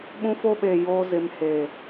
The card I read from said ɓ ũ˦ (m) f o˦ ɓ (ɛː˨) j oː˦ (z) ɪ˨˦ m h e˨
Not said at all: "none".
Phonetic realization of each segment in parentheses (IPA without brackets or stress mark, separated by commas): none, eː˨, z